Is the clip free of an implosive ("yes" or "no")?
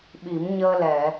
no